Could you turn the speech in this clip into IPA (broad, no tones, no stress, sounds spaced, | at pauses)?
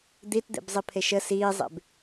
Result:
d̪ i t d̪ ḛ b zˤ i pʰ e ʃ ə s iː zˤ ḛ b